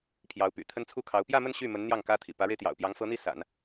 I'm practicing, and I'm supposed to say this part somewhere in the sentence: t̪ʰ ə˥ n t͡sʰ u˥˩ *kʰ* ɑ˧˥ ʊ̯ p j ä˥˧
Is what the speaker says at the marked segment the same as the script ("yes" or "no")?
yes